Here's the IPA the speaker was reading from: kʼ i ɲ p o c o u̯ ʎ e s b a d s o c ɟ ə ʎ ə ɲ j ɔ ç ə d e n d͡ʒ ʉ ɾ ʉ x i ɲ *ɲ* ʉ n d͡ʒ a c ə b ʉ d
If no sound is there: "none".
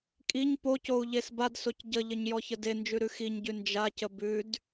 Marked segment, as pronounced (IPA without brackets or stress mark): ɟ